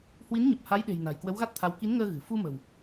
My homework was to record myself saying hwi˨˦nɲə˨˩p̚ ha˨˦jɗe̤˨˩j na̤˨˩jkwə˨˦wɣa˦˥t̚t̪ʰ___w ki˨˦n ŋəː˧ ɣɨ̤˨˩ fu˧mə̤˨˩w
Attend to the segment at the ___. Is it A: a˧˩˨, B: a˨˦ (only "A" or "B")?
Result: B